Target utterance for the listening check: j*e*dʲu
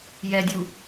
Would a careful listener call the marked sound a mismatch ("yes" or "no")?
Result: yes